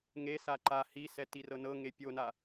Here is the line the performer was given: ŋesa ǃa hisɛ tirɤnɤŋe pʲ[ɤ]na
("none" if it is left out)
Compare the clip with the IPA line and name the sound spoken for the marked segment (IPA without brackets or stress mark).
o